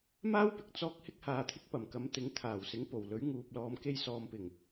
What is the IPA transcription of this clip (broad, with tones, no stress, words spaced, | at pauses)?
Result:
maː˥wpɪ˧k̚ t͡sɔː˥k̚ hɪ˥k̚haː˧t̪ʰɪ˥k̚ pɐ˨˩mkɐ˨˧m t̪ɪ˨˥ŋt̪ʰaː˨˩wsɪ˨˥ŋ po˨˩wlɵ˨˥ɥŋuː˨p̚ lɔː˨mke˧jsɔː˨mpɪ˨˩ŋ